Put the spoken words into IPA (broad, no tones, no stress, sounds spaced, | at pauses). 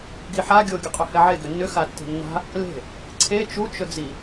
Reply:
ɡ i ħ a ɡʲ o ɡʲ ɵ qʼ ʏ h ɛ ʕ e ɡ ʏ nː ʏ x a tː e̤ nː a̤ | l e̤ | ǀʰ e t͡ʃ u t͡ʃ ɵ d͡z i